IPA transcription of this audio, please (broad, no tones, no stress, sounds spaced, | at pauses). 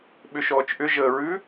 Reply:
ɓ ʏ ʃ ɔː t͡ʃ ʔ ʏ ʒ əː ɹ ʉ